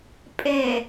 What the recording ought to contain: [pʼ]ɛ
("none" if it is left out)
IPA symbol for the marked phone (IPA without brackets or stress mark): pʼ